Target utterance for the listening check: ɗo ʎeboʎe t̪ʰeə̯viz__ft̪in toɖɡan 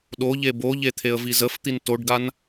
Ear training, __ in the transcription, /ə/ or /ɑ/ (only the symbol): ə